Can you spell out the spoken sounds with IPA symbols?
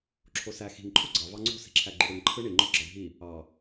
ǁʰ o s æ x i̤ ŋ ǃʰ u ɡ͡ǀ ɑ v ɑ ŋ͡ǀ o̤ s i̤ ǁʰ æ ɡ͡ǃ u ɽ ɯ ŋ ǃʰ ɯ ɳ i ŋ͡ǃ o ɡ͡ǁ ɑ ɖʱ i | ɑ

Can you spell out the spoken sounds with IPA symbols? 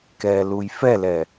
k ɛː l u j f ɛ l ɛ

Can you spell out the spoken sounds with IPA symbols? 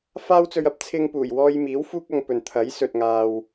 f aː˥ w t͡s ɵ˧ ɥ ɐ˧ p̚ t͡sʰ ɪ˧ ŋ p uː˨˩ j w ɔː˧ j m iː˨˥ w f uː˥ k̚ ɐ˧ ŋ p ɵ˨ n t̪ʰ ɐ˨˥ j s ɵ˨ t̚ ŋ aː˧ w

